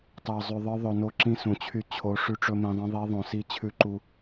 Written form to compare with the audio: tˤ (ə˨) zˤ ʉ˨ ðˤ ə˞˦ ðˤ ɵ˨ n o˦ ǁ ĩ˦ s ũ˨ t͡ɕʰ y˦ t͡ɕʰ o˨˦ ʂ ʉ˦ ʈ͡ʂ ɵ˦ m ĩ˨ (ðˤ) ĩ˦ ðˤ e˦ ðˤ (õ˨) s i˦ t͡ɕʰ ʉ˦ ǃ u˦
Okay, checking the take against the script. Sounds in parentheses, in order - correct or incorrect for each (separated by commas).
incorrect, correct, correct